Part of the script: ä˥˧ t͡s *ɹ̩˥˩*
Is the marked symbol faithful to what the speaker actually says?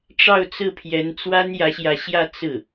yes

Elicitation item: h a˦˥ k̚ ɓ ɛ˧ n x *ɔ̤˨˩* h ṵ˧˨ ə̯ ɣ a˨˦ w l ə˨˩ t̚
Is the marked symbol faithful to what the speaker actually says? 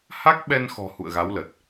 yes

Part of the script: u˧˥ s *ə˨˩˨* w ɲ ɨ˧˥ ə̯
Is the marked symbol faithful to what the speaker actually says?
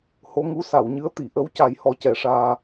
no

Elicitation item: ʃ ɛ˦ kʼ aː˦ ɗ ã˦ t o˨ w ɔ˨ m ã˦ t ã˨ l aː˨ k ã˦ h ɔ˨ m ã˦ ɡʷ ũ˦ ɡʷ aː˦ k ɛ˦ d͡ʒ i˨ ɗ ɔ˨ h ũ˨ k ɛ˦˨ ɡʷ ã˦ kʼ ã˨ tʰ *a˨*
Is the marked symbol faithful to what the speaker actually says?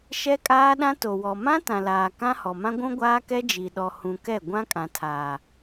no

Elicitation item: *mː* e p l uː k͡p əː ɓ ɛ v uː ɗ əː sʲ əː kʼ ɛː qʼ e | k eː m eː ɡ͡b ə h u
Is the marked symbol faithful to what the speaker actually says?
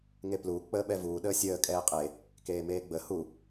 no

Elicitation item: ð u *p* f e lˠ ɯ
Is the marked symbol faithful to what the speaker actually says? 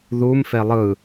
no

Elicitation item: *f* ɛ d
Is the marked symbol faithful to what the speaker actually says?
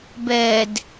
no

